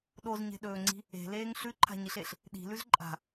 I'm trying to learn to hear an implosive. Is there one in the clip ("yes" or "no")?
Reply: yes